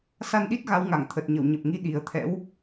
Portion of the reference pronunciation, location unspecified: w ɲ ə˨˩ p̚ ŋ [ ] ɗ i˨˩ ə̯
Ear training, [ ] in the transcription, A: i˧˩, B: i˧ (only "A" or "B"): B